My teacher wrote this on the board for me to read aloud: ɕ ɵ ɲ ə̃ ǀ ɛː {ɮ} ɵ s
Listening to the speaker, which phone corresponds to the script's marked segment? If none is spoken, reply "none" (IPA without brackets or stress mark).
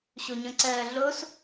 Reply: ɮ